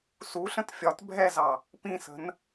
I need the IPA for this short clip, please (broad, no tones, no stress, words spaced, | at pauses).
suɬə̃t fʲɒt bʱɛzɑ | pĩsə̤n